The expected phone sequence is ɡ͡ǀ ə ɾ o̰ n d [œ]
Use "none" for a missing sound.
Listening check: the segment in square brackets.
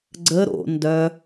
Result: œ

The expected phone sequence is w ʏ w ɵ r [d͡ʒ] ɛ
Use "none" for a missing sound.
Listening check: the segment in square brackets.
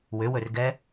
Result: ɡ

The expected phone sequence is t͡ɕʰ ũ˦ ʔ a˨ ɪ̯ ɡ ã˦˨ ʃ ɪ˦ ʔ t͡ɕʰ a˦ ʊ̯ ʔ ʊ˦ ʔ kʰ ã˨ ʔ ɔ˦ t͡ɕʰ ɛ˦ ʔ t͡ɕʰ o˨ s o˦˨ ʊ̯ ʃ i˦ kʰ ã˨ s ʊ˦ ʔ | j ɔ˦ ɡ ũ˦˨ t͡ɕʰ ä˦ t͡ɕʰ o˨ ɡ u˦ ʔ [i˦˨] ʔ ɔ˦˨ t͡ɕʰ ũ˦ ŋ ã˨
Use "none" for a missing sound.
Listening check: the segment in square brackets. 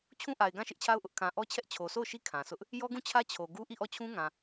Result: i˦˨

